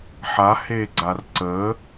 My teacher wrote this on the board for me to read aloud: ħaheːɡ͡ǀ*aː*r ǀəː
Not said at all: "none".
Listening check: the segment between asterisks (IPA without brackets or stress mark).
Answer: a